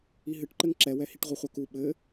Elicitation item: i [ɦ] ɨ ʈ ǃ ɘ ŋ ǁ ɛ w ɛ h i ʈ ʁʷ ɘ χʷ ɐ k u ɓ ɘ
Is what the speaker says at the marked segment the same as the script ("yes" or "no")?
yes